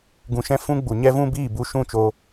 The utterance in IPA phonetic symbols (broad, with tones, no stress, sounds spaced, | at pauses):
ɡ ũ˨ ʃ ɛ̃˧ f ũ˦ ɡ͡b u˨ ɲ ɛ˦ v ũ˦ b iː˦˨ b u˧ ʃ ũ˦˨ t͡ʃ o˧